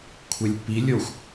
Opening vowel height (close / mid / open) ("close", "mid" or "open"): mid